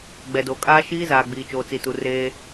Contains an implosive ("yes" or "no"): no